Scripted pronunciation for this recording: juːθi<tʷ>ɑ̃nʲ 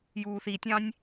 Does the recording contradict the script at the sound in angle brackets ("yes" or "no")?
yes